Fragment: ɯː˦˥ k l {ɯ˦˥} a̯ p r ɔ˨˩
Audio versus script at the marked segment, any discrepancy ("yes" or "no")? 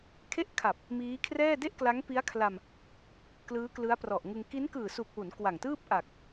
no